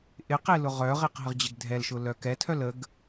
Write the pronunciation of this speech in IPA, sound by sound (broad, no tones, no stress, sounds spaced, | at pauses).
ʔ ɪ q e l ʊ ʁ œ ʁ e q ɦ ə ʁ d͡ʑ ɪ ɡ dʱ ɛ l ʃ ʊ l œ k ɛ tʰ œ l ə ɡ